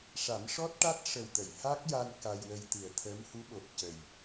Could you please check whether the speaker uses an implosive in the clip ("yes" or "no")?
yes